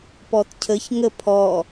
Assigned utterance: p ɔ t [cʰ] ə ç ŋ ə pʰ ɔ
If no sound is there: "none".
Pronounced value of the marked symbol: cʰ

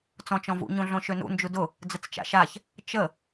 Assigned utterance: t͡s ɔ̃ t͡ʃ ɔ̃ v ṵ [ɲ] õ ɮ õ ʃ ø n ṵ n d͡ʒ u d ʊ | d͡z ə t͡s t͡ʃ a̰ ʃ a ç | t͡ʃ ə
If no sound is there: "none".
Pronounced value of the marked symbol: ɲ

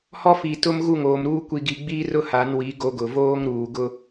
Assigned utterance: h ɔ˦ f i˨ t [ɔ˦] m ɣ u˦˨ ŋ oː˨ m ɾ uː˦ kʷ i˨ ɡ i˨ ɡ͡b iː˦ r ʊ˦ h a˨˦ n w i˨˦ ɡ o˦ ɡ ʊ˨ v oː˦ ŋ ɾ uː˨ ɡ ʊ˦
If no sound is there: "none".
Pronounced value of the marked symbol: ʊ˦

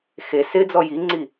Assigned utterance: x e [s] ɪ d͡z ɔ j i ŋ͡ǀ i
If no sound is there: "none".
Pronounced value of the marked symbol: s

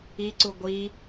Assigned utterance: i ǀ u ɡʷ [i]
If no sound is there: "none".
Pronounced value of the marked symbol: i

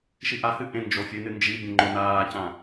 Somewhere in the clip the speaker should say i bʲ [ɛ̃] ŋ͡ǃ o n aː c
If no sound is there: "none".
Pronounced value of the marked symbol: ɛ̃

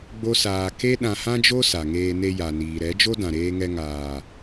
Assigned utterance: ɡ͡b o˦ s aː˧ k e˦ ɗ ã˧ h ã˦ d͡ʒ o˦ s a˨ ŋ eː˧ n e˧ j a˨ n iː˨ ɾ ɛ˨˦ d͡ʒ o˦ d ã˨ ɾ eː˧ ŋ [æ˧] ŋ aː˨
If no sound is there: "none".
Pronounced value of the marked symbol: ɛ˧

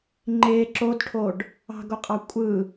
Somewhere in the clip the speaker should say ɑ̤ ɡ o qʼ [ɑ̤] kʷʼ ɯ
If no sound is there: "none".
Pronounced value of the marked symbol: ɑ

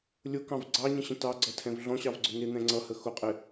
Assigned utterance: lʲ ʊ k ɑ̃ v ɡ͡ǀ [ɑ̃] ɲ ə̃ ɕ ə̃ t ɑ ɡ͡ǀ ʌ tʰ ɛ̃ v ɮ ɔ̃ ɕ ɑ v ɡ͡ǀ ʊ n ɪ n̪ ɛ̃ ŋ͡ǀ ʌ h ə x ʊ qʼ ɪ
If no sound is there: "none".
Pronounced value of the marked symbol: ɑ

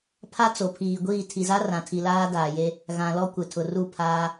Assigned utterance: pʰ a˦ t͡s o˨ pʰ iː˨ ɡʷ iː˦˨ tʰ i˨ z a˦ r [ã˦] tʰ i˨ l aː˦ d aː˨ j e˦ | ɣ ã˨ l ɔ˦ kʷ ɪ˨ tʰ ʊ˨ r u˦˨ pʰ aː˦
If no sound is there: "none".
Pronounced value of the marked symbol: ã˨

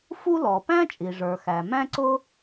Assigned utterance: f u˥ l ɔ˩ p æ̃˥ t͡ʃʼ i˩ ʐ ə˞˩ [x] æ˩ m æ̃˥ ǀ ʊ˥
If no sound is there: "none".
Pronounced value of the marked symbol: x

